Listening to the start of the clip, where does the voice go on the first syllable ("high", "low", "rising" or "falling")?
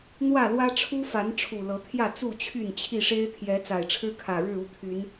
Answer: falling